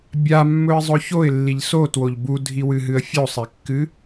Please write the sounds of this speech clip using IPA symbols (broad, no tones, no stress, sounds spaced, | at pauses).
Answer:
bʲ a mː ɵ ɪ̯ zˤ ɵ ç o ɪ̯ lː i ʎ s o t w o ʎ b u dʱ i w ɨ ɦ ɨ ə̯ fʲ o sˤ e kː ɨ